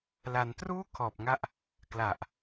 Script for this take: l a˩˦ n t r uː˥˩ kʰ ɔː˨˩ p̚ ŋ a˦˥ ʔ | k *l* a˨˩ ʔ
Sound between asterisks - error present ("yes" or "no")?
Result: no